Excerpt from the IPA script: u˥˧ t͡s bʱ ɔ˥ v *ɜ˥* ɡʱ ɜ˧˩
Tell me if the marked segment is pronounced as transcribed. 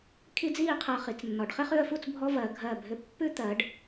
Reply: no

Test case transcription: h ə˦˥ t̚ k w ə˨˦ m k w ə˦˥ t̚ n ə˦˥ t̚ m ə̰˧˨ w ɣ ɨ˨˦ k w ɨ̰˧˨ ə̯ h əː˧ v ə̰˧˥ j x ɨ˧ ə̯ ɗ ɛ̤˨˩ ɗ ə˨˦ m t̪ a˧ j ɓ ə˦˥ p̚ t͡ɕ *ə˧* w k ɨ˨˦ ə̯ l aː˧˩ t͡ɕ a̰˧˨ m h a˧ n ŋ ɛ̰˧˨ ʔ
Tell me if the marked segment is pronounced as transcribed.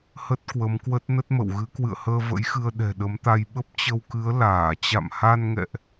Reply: yes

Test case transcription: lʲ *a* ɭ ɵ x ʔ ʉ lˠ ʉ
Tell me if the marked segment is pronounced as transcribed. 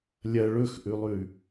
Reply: no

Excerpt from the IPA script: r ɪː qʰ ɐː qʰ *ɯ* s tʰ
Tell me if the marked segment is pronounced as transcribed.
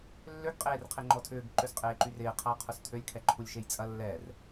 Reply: no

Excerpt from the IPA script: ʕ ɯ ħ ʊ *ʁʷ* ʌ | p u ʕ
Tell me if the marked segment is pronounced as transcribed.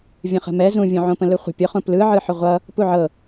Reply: yes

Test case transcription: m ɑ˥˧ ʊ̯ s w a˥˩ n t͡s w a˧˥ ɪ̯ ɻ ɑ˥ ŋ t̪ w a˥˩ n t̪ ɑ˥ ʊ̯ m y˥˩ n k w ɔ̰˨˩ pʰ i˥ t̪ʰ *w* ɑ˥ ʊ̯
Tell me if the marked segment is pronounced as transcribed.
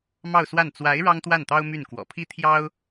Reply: no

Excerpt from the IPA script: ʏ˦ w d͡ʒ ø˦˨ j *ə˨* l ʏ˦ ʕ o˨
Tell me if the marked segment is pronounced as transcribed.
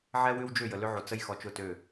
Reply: yes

